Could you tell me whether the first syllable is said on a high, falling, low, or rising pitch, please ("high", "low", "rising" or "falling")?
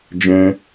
high